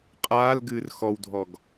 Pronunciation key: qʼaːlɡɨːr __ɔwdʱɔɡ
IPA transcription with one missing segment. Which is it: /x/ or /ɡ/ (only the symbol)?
x